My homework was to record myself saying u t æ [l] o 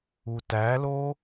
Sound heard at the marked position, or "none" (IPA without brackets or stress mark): l